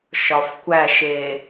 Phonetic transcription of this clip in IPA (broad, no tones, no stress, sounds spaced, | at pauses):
ʃ ɒ f kʷ æ ʃ e